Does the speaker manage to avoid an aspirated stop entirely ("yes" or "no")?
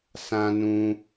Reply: yes